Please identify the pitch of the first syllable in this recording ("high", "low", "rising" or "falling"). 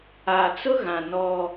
low